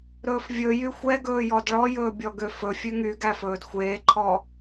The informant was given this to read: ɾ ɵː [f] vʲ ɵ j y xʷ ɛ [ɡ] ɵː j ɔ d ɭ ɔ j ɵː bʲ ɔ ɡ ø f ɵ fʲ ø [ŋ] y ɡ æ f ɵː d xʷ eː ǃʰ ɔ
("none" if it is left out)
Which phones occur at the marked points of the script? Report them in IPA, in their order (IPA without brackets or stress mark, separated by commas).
f, ɡ, ŋ